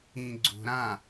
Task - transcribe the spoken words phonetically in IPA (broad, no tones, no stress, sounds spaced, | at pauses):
ĩ ɡ͡ǀ ṳ ɾ ã